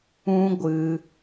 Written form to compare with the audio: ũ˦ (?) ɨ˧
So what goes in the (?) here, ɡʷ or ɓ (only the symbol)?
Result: ɡʷ